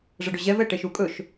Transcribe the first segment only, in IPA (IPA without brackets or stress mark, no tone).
ʐ